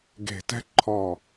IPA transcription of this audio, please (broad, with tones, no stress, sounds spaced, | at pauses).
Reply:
ɡ e̤˨˩ t ɛ̤˧ ǃʰ ɔ˨˩